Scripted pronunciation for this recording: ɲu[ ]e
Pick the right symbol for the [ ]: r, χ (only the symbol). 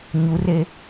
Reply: r